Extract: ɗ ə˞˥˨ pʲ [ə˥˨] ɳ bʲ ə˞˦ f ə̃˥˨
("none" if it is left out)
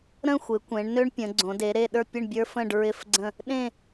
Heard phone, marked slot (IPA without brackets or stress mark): ə˥˨